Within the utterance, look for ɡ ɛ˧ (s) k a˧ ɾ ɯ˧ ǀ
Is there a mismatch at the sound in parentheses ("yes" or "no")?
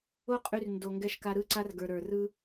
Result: yes